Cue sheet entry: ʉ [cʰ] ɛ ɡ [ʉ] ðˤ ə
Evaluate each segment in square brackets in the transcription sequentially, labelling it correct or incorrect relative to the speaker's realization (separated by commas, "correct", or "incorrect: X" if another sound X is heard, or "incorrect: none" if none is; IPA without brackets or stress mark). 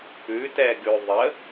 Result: incorrect: t, correct